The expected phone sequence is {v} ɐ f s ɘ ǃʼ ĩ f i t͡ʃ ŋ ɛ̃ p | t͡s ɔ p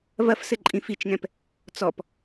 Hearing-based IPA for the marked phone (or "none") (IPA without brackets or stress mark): v